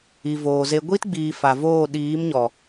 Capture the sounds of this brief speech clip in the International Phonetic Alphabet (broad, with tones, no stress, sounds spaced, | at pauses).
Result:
i˨ v oː˨ z e˧ ɡʷ i˦ t ɡ͡b iː˨ f a˨ v oː˦˨ ɗ iː˨˦ m ɲ ɔ˨